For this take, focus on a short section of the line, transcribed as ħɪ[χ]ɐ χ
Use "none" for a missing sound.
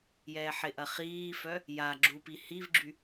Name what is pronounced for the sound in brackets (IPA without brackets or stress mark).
ʔ